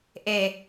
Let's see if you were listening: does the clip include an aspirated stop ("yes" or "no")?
no